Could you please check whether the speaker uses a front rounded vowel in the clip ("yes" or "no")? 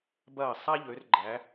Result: yes